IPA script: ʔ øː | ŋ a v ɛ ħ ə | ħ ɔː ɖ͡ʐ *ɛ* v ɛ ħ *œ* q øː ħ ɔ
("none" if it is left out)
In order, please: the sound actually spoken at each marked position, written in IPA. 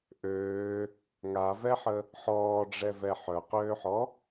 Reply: ɛ, œ

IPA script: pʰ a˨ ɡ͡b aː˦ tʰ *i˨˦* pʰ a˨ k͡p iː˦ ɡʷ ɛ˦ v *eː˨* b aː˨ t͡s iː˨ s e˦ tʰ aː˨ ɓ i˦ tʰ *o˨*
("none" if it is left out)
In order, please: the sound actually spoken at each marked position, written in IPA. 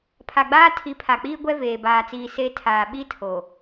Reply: i˨˦, eː˨, o˨

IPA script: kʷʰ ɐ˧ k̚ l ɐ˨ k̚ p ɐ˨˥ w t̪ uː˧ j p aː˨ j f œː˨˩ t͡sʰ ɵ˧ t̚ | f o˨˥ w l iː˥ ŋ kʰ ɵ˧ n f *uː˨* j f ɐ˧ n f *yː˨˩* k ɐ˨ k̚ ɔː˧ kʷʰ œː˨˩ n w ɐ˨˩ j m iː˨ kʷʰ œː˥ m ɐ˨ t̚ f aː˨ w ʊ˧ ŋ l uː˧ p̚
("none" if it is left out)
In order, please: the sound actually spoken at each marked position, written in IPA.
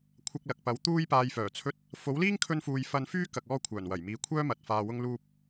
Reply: uː˨, yː˥

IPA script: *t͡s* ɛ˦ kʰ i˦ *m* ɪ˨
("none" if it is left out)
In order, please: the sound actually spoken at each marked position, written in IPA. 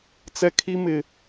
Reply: t͡s, m

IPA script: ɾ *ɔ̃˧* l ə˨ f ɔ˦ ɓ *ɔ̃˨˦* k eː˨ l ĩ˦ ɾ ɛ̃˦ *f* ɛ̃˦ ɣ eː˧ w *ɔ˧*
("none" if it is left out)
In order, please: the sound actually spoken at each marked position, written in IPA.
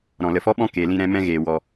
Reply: ɔ̃˨, ɔ̃˦, m, ɔ˧

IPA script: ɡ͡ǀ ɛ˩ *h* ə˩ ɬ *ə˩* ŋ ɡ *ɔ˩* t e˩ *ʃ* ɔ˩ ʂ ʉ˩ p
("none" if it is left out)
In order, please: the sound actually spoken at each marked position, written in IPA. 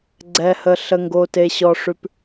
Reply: h, ə˩, o˩, ɕ

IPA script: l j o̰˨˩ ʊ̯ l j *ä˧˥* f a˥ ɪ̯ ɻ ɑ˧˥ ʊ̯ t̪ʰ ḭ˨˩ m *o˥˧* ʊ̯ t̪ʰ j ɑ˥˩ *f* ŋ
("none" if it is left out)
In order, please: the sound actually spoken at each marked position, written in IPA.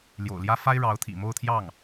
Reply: ä˥, o˥˧, none

